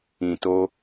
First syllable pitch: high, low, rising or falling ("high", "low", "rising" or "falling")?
low